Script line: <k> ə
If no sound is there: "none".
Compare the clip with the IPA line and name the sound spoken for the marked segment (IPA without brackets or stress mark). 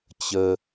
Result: t͡ɕ